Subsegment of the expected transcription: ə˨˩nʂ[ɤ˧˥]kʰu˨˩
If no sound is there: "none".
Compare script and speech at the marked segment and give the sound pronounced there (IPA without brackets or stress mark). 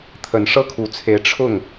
ɤ˥